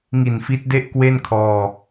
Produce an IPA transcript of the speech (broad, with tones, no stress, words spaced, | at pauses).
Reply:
ŋi˨˩nfi˦˥t̚de˥˩ʔ kwe˥˩n kʰɔː˧